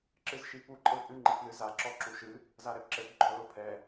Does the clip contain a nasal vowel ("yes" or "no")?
no